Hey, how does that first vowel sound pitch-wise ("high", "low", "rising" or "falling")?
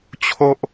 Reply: high